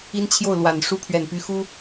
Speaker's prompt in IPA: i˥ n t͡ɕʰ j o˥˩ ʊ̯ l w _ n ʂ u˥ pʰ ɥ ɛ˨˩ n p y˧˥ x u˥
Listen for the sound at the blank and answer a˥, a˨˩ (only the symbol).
a˨˩